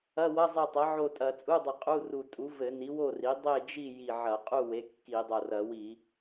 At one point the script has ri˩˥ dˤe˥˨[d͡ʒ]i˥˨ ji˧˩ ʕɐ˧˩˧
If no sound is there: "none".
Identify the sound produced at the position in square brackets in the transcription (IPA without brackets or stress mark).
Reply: d͡ʒ